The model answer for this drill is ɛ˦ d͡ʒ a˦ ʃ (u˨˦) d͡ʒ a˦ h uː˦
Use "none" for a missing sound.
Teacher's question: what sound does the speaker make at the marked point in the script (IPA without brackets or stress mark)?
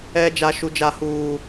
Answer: u˦